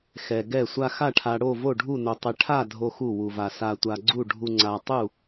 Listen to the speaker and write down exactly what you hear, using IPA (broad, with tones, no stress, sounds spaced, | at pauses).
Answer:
x ɛ˧ ɡ ɛ˥˨ sʷ a˧ x a˥˨ ʈʰ a˧ ɽ o˥˨ v o˥˨ ɖʱ u˥˨ n o˧ tˤ ɛ˧ ʈʰ a˥˨ dʱ o˧ x u˥˨ w u˧ v a˧ s a˧ tʷ a˧ ɡ͡ǀ u˥˨ ɖʱ u˧ ŋ͡ǀ a˧ tˤ u˥˨